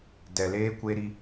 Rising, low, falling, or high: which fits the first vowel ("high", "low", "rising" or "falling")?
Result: low